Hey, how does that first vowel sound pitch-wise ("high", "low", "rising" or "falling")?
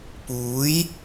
rising